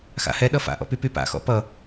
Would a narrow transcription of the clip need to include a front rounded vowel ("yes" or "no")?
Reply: yes